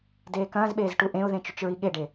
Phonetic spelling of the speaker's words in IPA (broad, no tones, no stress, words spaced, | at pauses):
deːkɐ̃ːzɓeːz ʈuʔẽʊ̯ðẽ t͡ʃyt͡ʃɹiɠeɖe